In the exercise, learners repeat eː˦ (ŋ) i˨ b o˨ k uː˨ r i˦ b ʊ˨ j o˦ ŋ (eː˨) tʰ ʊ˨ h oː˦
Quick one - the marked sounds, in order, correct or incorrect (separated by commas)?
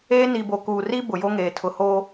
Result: incorrect, correct